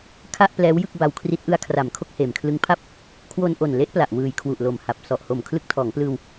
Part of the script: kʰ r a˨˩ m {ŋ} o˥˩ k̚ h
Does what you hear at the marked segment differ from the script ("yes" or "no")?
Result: yes